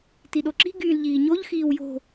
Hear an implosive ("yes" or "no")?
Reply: yes